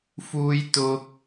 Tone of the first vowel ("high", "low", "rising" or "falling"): high